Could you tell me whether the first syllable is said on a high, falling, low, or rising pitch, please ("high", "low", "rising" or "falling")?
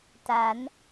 rising